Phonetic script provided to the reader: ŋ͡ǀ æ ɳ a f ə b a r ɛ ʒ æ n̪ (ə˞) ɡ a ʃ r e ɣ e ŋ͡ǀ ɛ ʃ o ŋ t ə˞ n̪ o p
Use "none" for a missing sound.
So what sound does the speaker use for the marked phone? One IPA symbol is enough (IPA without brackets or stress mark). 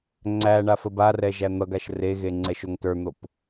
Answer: ʌ